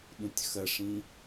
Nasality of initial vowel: nasal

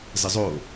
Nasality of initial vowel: oral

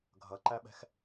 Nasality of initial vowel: oral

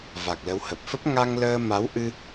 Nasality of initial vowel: oral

